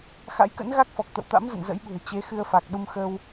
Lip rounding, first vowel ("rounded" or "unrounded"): unrounded